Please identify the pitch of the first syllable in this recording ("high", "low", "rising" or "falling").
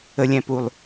low